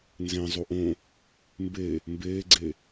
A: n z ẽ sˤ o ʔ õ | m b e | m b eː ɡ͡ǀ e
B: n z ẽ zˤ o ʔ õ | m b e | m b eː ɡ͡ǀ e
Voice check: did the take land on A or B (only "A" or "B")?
B